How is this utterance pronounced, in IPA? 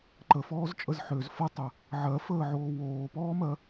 ǃəfɔːzt͡ʃʼəz ħøz fʌtˤə | ʕɜfəːʕoː woːpɔːmɜ

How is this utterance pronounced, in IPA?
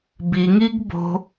biŋiɡ bo̤

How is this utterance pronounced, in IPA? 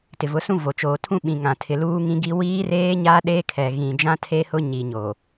tɪ˨vʊ˨˦sũ˦ vo˨t͡ʃoː˨tʰũ˦ɓĩ˨ ŋã˨ tʰɪ˨ luː˦ŋĩ˦ ɡi˦ wiː˦reː˦ɲa˦ ɗe˦kʰɛ˨ɣĩ˨ d͡ʒã˦tʰe˦hʊ˦ɲi˨ ɲo˨

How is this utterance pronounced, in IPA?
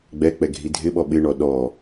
ɡ͡bɛk͡pɛ ɡʱidʱɪɓɔ ɓɪɳɔ ɗɔ

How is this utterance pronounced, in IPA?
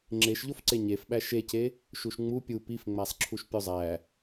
ŋ͡ǁeʃʎofǀe ɲefɓæ ʃece | ʃuʃŋ͡mu pʲu pifŋ͡mæsˤǁʰuʃ pʲozˤæ

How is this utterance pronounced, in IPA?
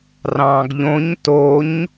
rɑ̃ːɡʎõɲ toɲ

